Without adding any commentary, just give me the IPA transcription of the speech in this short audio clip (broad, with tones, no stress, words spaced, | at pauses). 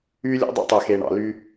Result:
yː˦lʲo̰˦dˤɛ̰˦tˤɛː˨x e˨ɳɑ̰˨ ly˦